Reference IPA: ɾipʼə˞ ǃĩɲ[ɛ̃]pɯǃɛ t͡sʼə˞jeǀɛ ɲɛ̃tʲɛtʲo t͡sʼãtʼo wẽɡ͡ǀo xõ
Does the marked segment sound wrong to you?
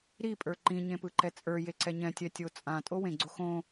yes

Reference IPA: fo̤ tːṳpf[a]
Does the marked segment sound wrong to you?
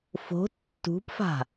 yes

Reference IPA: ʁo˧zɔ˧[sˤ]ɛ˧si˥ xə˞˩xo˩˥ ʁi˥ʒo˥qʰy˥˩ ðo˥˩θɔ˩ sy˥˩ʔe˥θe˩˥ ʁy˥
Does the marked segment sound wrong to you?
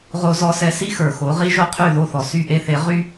yes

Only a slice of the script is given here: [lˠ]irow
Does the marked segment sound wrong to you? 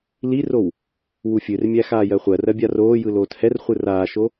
yes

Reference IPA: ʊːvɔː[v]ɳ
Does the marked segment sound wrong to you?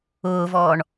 yes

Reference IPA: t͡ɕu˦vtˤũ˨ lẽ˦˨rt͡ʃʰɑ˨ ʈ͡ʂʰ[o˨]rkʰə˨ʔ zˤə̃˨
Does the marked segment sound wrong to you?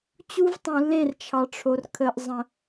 no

